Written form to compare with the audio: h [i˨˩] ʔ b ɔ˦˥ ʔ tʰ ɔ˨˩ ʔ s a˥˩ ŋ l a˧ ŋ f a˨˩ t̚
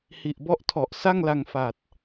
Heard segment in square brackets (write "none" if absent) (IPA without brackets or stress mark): i˨˩